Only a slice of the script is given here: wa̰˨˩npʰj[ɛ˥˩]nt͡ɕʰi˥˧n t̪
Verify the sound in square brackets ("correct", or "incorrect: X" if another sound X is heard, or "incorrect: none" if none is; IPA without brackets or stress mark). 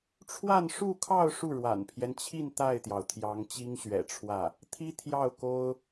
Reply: incorrect: ɛ˦